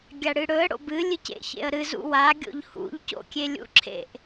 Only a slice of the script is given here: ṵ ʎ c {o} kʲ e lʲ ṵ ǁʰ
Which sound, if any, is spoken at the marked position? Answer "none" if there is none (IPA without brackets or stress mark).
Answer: o̰